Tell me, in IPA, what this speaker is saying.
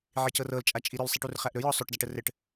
ʕ i c ɤ r ɤ l t͡ʃʼ a t͡ʃʼ i ɾ ɵ l sˤ i ʈ u r χ æ ʔ ɾ ɵ j ɔ sˤ ɵ ʈ d a ʈ ə r ɘ ʈ

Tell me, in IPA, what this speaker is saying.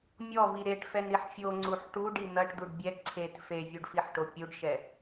mʲ ɔ v i ɾ e ʈ f ɛ n ɾ i ħ fʲ o ŋ͡ǀ u ħ ʈ u ɖ i n̪ ɐ ʈ d̪ u ɖ bʲ ɛ ǀʰ e t f e vʲ u ɖ f i ħ ʈ o pʲ u ɖ ʃ ɛ

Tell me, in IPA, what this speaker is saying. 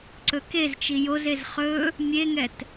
ǀ ɵ k e z t͡ʃ i j o z e z χ ɵ | mʲ e ŋ ɛ t

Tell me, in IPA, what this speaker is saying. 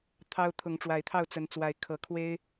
t̪ʰ ɑ˦ ʊ̯ t̪ʰ ʊ˨˦ ŋ ʈ͡ʂ w a˨˩ ɪ̯ t̪ʰ ɑ˥˨ ʊ̯ t͡s ə˨˦ n t͡s w a˨˦ ɪ̯ kʰ ɤ˨˩ kʰ w e˦ ɪ̯

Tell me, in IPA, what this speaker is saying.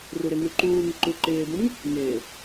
r u ɾ ɪ ŋ ʉ ǃ uː ŋ ɪ ǃ u ǃ ɪː b ũ ŋ | ŋ ɪː

